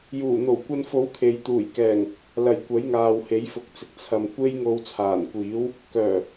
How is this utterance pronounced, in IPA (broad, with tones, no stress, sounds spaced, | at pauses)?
j uː˨˩ n̪ o˨˩ w kʷ ɐ˧ n f o˨˥ w kʰ e˨ j t̪ uː˨˩ j k ɛː˨˩ ŋ | l ɐ˨˩ j kʷ ɐ˨˥ j ŋ aː˨ w h e˨˥ j f ʊ˨˥ k̚ t͡s ɪ˨ k̚ t͡sʰ ɐ˨ m kʷ e˥ j ŋ o˧ w t͡sʰ aː˨˩ n kʷ iː˨˥ w | k œː˨˩